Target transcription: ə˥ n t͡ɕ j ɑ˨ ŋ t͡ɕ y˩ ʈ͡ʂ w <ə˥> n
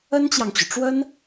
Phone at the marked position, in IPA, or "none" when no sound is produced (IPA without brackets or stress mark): ə˥